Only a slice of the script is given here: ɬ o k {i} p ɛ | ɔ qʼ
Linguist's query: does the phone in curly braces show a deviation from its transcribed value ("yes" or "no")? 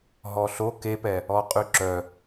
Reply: yes